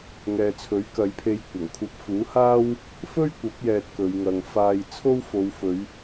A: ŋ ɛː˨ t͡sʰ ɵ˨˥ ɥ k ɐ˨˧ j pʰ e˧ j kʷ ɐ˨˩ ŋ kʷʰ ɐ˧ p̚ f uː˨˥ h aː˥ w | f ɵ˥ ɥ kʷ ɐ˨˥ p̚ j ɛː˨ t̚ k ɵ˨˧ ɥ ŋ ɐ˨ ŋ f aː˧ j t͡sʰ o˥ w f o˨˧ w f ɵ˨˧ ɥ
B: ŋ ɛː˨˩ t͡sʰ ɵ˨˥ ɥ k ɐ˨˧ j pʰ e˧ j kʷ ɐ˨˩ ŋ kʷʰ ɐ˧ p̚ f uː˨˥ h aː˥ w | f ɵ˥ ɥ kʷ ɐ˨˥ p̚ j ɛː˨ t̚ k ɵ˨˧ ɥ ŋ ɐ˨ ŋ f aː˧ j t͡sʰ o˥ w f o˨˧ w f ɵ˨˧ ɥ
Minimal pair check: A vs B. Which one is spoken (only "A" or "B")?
A